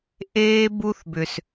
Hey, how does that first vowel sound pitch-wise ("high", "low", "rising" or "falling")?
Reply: high